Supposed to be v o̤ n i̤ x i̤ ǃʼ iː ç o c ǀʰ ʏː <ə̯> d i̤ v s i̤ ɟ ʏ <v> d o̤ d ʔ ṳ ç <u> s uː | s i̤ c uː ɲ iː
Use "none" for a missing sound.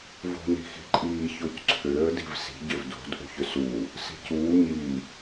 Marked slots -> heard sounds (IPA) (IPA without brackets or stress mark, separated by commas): ə̯, v, ʏ